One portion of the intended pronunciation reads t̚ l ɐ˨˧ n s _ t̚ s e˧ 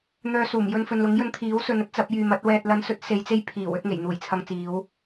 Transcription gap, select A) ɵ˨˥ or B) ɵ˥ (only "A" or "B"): A